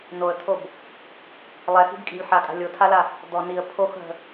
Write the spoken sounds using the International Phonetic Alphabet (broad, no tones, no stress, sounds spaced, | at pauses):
n o ə̯ t̪ʰ o b | lˠ ɛ x i̤ b kʼ i̤ lʲ ħ a kʼ a̤ lʲ o tʰ a l a | d̪ ɔ n i ə̯ pʰ o x ɦ ə̤